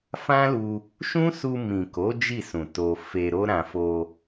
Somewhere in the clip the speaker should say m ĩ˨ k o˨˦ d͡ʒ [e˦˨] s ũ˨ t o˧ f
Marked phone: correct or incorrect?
incorrect